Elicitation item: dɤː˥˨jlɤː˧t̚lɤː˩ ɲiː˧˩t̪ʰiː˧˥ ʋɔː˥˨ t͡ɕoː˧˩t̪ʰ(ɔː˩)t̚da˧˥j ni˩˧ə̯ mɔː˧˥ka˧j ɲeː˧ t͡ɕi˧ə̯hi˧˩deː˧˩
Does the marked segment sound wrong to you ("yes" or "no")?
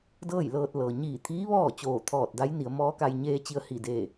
yes